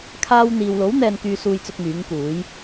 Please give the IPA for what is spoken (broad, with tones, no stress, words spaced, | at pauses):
kʰaː˧wn̪iː˨wlo˨˥w n̪ɛː˥nkyː˥suː˥j t͡sʊ˥k̚myː˨˥ŋkuː˨˥j